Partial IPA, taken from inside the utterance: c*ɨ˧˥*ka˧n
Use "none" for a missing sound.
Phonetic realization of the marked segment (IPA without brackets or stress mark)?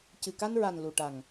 ɨ˨˩